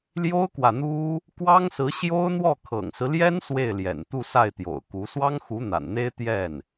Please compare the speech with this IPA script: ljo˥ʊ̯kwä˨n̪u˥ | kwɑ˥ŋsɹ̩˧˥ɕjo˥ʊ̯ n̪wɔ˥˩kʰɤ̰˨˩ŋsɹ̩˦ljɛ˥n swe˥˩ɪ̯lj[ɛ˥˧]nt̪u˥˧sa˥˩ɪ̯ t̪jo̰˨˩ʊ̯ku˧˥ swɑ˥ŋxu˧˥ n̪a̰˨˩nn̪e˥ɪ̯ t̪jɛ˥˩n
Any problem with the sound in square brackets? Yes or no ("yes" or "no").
yes